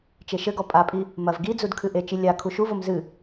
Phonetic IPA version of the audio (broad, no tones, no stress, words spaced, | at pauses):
t͡ʃeʃɘɡɔ pʼapʼi | mɐv ɡid͡zud kʰɨʔet͡ʃi lʲa kʰuʃuvom zɨ